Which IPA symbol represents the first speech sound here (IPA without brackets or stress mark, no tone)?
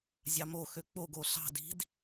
zʲ